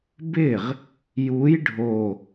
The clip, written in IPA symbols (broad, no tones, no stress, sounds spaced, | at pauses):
b ɪ ʁ | j u j ɖʱ o